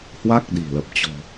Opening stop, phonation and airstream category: plain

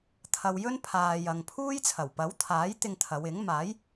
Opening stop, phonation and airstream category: aspirated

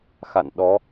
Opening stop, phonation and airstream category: implosive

